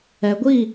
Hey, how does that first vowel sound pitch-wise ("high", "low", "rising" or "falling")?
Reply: low